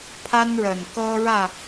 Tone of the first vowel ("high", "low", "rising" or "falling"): high